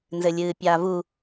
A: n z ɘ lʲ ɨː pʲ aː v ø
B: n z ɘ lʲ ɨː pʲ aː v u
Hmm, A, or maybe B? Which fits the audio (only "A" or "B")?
B